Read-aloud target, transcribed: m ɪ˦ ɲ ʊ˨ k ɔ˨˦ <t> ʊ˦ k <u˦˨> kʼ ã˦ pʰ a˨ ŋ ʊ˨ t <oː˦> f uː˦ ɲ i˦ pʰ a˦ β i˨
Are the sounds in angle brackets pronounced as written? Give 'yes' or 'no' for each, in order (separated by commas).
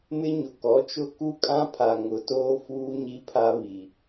no, no, yes